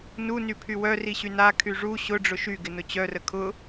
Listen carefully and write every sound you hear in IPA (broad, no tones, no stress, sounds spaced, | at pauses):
n u n y pʰ y w œ r i ɕ y n a kʰ y ʐ u ɕ ʊ ɖ͡ʐ ʊ ʃ y ɡ ɪ n ʊ t͡ɕ œ r ə kʰ ʊ